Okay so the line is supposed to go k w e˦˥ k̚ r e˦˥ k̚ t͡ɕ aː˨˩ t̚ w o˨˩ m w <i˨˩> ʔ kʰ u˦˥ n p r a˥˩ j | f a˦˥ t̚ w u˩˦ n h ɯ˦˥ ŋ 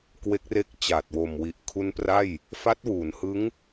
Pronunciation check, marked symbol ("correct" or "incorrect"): correct